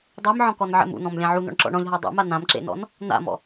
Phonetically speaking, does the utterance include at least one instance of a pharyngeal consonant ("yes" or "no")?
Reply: yes